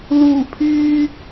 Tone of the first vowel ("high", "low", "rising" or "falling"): low